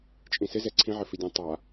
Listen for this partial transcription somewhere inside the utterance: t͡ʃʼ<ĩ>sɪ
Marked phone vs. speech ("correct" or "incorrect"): correct